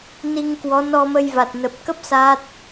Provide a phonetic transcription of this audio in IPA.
ni˧ŋkwɔ˨˦ nɔ˧mə˧jva˨˩t̚ nə˨˩p̚kə˦˥p̚ sa˦˥t̚

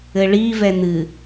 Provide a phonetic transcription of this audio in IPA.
ɘɭi vɛn̪ɨ

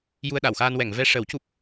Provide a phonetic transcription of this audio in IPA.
ju˧ə̯ɗa˨˩˨wxaː˧n wɛ˨˩˨ŋ vɛ˧ ʂə˨˩˦w cu˦˥p̚

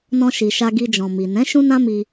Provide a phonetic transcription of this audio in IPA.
nɔ̃˧ʃi˨ ʃa˧ɡi˧d͡ʒɔ̃˨ mi˨ nɛ̃˨˦ ʃũ˦nã˦mi˧

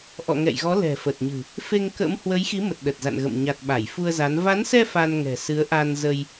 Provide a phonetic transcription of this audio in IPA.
ʔɔ̰˧˨ŋɛ̰˧˨jɣɔ˨˦ lɛ̤˨˩fə˨˩t̚ɲɨ̤˨˩ | fe˧ŋkə̰˧˥m hwə˨˦jxi˨˦mə˨˩t̚ ɗə˨˩t̚za̰˧˨nɣə̰˧˨m ɲa˨˩t̚ ɓa˧˩jfu˧ə̯za˨˦n va˨˦nsɛ˧ fa˧nŋɛ̤˨˩ sɨ˨˦ə̯ʔa˧nzə˧j

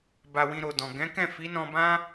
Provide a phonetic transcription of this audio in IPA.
ba˧wĩ˧ɾo˨dɔ̃˨ ɡɛ̃˨˦kɛ̃˦˨ fi˨˦nɔ̃˧bã˦

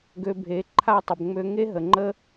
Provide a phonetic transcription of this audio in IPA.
ɡø˧bʱe˨˦ǃʰa˦˨tˤə˨b ŋ͡mø˧ŋe˦ɦə˨ŋ͡ǃə˦

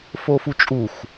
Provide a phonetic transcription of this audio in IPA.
fofut͡ʃʼuxʷ

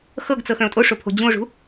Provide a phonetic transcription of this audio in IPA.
xɤɡt͡sɤ xœ̃o̯tʼoʂo pʰo̤d͡ʑũo̯ʐṳ

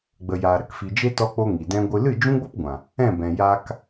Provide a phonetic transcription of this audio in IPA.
ɡ͡bə˨jaː˨ɾə˦kfi˨ d͡ʒe˦tɔ˧k͡po˧ ŋi˨dɛ̃˦ɡʷɨ˦ lɨ˦˨d͡ʒũ˦ɡ͡bo˦pɡʷã˨ | ɛ̃˦˨bɛ̃˨ jaː˧k

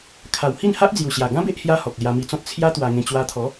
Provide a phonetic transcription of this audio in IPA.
kʰa˨˩whi˥˧nha˦ʔ d͡zju˨˩ɕja˨˩ɡã˦be˦ʔ hja˦hɔ˨k̚ lja˧mi˧t͡sɔ̃˦t̚ t͡sʰja˦ t̪wa˧ŋẽ˧ t͡ɕwa˧t̪ʰɔ˨˦

